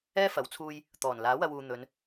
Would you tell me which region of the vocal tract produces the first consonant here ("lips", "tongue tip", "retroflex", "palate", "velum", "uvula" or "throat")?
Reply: lips